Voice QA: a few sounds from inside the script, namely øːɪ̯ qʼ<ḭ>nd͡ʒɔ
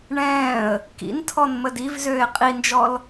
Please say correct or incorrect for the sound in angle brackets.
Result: incorrect